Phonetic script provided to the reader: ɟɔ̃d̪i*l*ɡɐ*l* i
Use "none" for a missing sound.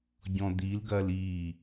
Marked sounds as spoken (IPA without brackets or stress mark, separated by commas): l, l